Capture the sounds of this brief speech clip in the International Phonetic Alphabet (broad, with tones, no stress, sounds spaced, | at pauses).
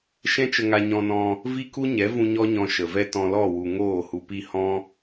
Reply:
ʃ ɛ̃˦ t͡ʃ ə˧ ŋ a˧ ɲ ɔ̃˧ n ɔ̃˧ | v i˦ k u˦ ɲ ɛ˨˦ v ũ˧ ɲ ɔ˦ ɲ ɔ̃˧ ʃ ə˨ v ɛ˦ t ɔ̃˧ l ɔ˦˨ w u˨ ŋ oː˦˨ h u˧ p i˦˨ h ɔ̃˦